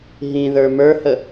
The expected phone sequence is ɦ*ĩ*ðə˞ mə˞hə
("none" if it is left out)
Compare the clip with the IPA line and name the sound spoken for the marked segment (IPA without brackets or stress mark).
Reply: ĩ